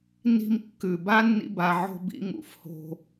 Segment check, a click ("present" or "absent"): absent